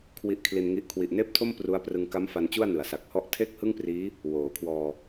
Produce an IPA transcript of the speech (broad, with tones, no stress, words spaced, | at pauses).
kʰwi˦˥ʔkʰli˧nŋi˦˥ʔ kʰwi˨˩ʔneː˥˩p̚tʰo˥˩m pru˦˥a̯prɯ˧ŋ ka˦˥m fa˧nt͡ɕu˥˩a̯ nɯ˩˦a̯sa˨˩k̚hɔ˥˩ʔ tʰe˥˩k̚hɯ˥˩ŋpriː˦˥ | woː˩˦kʰwɔː˧